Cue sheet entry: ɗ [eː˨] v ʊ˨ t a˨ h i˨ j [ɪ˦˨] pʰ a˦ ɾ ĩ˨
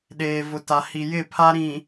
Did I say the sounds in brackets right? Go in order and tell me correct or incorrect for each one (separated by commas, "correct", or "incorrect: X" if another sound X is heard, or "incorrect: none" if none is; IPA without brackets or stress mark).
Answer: correct, correct